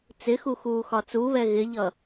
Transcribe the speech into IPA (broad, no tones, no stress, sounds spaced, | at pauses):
t͡s ɪ x u x uː x ɒ t͡s u β ɛ ɣ ɪ ʎ ʌ